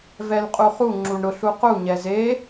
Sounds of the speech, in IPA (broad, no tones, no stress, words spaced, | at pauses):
vɛlqʼuχu ŋ͡ǁuɳɾʊɬ uqu ɲɛze